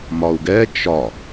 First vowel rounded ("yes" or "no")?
yes